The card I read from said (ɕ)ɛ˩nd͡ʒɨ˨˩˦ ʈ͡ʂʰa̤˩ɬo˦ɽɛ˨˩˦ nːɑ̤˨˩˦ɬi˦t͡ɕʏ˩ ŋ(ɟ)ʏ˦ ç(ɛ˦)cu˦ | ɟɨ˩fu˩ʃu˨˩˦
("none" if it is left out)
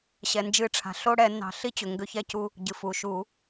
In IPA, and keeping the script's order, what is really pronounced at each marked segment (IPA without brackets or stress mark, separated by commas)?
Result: ɕ, ɡ, ɛ˦